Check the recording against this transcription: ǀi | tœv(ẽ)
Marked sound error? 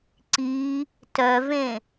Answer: no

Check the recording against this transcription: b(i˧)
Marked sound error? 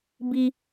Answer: no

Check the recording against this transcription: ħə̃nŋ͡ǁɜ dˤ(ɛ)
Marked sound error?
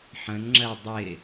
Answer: yes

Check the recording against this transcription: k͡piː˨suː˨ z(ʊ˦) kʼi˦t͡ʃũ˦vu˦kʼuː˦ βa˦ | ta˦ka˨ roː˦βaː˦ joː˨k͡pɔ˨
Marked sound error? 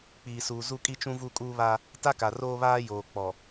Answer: yes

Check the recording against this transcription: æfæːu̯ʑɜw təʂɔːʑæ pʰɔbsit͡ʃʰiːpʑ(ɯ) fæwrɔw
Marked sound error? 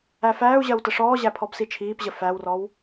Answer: yes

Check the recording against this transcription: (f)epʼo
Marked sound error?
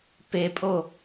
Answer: yes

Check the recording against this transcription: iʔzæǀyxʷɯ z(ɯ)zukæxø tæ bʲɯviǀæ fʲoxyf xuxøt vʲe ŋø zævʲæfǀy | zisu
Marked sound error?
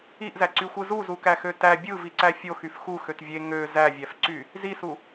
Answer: yes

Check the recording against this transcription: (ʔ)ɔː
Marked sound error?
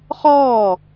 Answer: yes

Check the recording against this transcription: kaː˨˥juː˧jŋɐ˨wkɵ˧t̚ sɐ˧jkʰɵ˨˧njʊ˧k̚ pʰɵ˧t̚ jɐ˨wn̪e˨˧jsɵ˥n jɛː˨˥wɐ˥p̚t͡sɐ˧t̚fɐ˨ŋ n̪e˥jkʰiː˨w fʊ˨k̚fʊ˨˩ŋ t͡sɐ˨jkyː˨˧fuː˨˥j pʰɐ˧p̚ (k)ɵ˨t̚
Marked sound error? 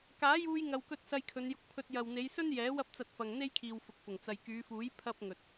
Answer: yes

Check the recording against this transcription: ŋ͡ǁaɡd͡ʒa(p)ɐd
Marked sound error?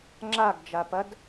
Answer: no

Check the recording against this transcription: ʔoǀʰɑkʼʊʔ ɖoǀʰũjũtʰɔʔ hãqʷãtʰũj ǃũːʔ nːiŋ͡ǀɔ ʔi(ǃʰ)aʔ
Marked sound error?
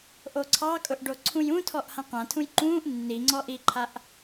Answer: no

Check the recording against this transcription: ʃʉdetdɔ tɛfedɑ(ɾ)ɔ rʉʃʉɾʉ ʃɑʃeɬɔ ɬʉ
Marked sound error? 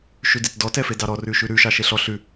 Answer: no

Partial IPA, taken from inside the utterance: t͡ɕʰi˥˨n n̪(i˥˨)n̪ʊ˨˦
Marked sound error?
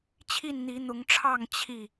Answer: yes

